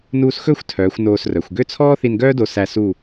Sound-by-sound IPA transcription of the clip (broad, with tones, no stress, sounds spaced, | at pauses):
n uː˧ s x ɵ˥˧ xʷ tʰ œː˩˧ xʷ n oː˧ s r œ˩˧ xʷ ɡ ø˥˧ t͡sʰ ɔː˥ θ i˧ n ɡ œː˥ d o˧ s æ˧ s u˥˧